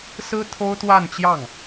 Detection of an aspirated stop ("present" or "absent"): present